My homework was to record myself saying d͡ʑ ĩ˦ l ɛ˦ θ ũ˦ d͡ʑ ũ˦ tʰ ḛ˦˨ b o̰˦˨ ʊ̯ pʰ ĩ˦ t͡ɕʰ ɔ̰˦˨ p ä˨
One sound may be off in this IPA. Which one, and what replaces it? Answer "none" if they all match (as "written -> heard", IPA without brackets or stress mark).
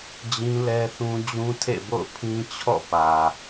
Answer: none